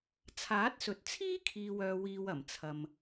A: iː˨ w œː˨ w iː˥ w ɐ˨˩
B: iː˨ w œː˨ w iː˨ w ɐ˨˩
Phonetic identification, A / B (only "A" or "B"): B